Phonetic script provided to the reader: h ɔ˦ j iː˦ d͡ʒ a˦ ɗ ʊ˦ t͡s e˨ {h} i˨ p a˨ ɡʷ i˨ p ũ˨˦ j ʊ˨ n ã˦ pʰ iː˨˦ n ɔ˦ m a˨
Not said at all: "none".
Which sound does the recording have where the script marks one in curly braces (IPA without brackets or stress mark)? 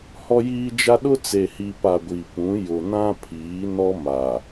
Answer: h